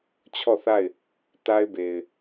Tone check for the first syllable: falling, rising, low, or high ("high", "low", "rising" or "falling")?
falling